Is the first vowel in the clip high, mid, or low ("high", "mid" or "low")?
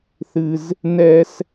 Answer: high